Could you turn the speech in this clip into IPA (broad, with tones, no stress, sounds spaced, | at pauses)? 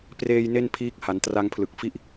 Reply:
p r eː˧ j n e˥˩ n pʰ iː˦˥ k̚ h a˩˦ n t r a˧ ŋ pʰ l ɯ˨˩ k̚ f i˥˩ ʔ